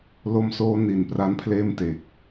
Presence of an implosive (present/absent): absent